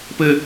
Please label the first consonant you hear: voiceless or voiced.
voiceless